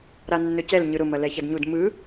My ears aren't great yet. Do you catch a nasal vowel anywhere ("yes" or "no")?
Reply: no